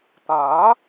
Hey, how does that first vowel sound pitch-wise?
rising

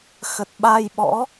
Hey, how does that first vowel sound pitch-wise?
low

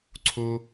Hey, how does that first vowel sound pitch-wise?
high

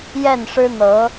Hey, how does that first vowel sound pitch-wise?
falling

